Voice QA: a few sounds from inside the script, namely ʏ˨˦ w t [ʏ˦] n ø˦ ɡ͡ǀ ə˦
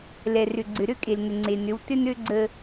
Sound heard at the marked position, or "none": ʏ˦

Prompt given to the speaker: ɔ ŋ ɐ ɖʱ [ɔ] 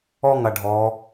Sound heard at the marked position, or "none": ɔ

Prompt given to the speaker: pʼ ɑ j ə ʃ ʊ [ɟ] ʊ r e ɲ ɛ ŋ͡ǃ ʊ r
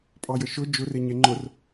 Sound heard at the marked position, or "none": d͡ʒ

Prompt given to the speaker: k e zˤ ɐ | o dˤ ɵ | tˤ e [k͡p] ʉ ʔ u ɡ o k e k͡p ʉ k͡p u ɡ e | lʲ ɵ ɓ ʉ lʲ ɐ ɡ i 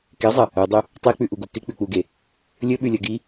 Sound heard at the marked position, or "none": k͡p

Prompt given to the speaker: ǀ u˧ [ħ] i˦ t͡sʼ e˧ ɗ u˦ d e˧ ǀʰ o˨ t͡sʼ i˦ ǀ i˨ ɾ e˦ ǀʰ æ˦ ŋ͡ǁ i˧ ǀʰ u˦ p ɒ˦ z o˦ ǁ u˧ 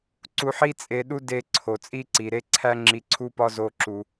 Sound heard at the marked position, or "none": ħ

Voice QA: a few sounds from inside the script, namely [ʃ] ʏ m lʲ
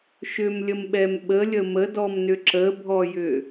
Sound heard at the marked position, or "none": ʃ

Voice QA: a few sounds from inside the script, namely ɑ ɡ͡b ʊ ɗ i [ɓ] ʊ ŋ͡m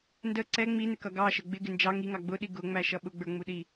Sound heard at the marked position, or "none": ɡ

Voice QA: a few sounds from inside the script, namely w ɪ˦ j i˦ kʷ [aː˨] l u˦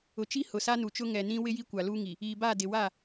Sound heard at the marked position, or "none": a˨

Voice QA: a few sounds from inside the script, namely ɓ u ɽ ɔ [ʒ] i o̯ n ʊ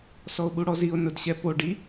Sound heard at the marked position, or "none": z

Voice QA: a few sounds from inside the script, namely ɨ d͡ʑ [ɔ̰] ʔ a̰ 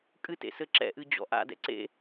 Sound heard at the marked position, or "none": ɔ̰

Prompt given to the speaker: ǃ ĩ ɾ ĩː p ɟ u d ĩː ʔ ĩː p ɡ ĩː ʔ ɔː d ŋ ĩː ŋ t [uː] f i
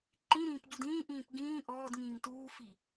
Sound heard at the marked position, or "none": uː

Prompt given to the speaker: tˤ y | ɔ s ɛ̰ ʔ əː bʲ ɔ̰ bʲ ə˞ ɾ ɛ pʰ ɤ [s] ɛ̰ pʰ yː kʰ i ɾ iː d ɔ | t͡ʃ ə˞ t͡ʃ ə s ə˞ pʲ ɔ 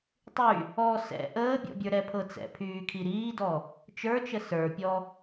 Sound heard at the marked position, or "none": t͡s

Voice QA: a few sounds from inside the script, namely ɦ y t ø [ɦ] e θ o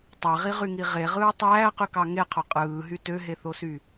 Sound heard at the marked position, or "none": ɦ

